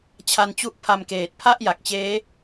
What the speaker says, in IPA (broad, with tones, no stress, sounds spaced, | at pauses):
t͡ɕʰ a˧ n t͡ɕ u˦˥ ʔ pʰ a˧ m k eː˨˩ t̚ pʰ a˥˩ ʔ j a˨˩ k̚ t͡ɕ eː˦˥